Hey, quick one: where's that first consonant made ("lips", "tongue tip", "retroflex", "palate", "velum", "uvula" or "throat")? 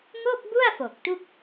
velum